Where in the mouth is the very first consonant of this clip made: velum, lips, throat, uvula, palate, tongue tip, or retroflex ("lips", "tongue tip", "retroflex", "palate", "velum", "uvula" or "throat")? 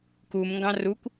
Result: velum